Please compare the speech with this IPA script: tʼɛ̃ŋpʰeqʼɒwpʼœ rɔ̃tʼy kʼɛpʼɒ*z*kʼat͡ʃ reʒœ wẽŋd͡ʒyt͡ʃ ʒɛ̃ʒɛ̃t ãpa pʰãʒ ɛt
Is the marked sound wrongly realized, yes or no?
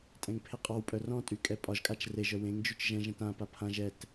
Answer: yes